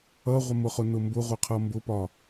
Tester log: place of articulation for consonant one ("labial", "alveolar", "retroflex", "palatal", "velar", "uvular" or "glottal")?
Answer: uvular